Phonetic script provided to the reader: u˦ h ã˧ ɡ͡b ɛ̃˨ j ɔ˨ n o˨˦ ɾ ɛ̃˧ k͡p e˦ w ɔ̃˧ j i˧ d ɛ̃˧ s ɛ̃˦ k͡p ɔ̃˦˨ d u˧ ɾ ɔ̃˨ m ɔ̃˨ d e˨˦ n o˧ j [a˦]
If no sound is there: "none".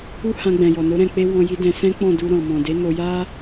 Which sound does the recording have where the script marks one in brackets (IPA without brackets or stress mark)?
a˦